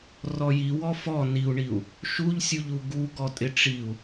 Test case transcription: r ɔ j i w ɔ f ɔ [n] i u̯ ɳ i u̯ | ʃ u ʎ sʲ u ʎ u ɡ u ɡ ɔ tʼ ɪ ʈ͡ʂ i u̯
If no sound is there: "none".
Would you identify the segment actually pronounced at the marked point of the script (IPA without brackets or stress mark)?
n